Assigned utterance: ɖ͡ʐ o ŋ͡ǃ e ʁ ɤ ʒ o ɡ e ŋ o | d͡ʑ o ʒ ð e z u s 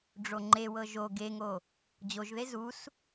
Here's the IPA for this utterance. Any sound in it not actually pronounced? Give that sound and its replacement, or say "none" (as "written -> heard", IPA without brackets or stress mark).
ʁ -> w